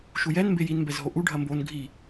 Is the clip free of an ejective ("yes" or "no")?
yes